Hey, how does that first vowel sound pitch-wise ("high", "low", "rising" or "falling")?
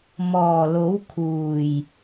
low